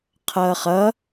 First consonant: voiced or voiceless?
voiceless